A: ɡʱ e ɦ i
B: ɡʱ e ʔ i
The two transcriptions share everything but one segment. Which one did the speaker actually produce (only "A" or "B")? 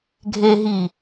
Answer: A